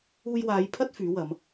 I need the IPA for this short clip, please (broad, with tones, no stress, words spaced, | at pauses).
uː˧jwaː˨˧jpʰɐ˥t̚ fyː˨˥wɐ˨˧m